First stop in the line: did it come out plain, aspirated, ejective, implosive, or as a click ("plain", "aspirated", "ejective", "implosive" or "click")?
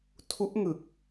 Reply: aspirated